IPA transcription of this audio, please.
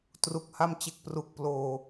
t r u˨˩ k̚ h a˧ m t͡ɕ e˨˩ k̚ p r u˨˩ k̚ p l oː˨˩

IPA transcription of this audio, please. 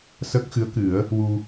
s əː˦˥ k̚ x ɨ˧˥ ə̯ k ɨ˨˩˦ ə̯ | w u˧

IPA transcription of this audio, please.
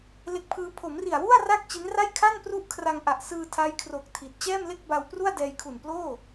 l e˦˥ k̚ pʰ ɯː˦˥ pʰ o˩˦ m r i˨˩ a̯ w u˥˩ a̯ r a˥˩ k̚ t͡ɕ i˦˥ n r a˥˩ j kʰ a˥˩ n p r u˥˩ ʔ kʰ r a˧ ŋ ʔ a˨˩ ʔ s ɯː˧ tʰ a˦˥ j kʰ r o˨˩ k̚ tʰ i˨˩ t̚ t͡ɕ ɛː˥˩ m l e˥˩ k̚ b a˧ w p r u˥˩ a̯ d ɛː˧ j kʰ u˨˩ n p l oː˥˩

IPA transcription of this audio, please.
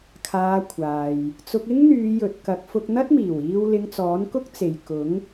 kʰ aː˧ kʷʰ aː˨ j | t͡s ʊ˧ k̚ ɪ˥ ŋ n̪ yː˨˧ j ɵ˨ t̚ k ɐ˨˥ k̚ f ʊ˧ k̚ n̪ ɐ˥ t̚ m iː˨˩ w iː˧ w l ɪ˧ ŋ t͡s ɔː˨˥ n k ʊ˥ k̚ t͡s e˨ j k ʊ˨˥ ŋ

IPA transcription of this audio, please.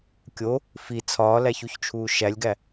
kʲ o | f i t͡sʰ ɒː l æ ç u ç t͡ʃʰ uː ʃ æ lʲ ɡ æ

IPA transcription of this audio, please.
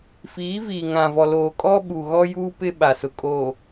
f iː˨˦ v iː˨ ŋ ã˨ v ɔ˨ l oː˨ kʼ ɔ˦ ɓ u˨ ɣ ɔ˦ j uː˦ p ɪ˦ ɓ a˨ s ʊ˨ kʼ oː˨

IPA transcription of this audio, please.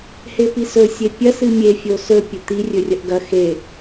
h e p i s ɵ sʲ e pʲ ɐ s ɨ mʲ e fʲ o s ɵ pʲ ɵ t̪ i rʲ ɵ rʲ ɐ ʔ ɡ ɐ x e

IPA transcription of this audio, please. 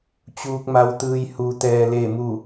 t͡ɕ uː˧ k̚ m a˧ w t̪ ɯː˧ j h u˧ t̪ ɛː˧ l e˥˨ m u˥˨

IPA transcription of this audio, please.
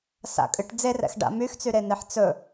s a̰ kʼ ɨ ʈ d͡z e r ɛ̰ x ɖ a̰ m y x t͡s y ɾ e n̪ e ħ t͡s ɵ

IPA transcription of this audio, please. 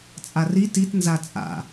t͡sʼ a r i t i t n z a t͡sʼ a̰

